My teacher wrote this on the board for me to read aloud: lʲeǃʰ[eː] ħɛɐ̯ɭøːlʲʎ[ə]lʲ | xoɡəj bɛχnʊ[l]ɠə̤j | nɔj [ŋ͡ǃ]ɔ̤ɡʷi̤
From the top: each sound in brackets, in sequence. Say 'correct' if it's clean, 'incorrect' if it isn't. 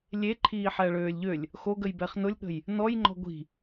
incorrect: iː, incorrect: ø, incorrect: lʲ, correct

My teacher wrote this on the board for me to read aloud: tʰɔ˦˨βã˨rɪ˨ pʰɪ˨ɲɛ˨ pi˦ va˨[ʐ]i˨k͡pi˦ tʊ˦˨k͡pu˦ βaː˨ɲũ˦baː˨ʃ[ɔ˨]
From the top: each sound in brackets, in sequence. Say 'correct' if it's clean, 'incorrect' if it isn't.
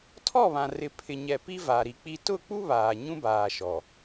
incorrect: ɾ, correct

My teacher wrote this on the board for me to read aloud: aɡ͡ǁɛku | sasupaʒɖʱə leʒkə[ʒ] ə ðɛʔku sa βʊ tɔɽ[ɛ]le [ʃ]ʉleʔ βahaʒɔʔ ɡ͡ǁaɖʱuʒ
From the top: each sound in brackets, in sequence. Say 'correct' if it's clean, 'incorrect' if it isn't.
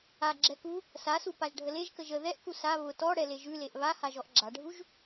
correct, correct, incorrect: ʒ

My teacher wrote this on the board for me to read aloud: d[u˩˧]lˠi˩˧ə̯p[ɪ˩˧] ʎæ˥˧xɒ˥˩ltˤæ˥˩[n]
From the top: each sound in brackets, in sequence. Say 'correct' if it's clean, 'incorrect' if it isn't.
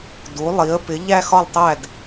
correct, correct, incorrect: d

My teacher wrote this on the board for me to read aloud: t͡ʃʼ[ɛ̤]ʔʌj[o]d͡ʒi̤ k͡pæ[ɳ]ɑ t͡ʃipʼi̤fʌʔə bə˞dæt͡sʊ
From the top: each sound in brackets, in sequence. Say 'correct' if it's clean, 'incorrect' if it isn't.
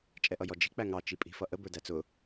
incorrect: ɛ, incorrect: ɔ, incorrect: ŋ

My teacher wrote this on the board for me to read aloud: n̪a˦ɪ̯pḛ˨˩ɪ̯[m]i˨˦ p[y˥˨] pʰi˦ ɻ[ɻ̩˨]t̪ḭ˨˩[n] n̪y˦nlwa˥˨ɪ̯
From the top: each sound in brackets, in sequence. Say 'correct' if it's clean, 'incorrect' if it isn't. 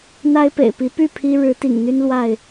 incorrect: p, correct, incorrect: ɻ̩˨˦, incorrect: ŋ

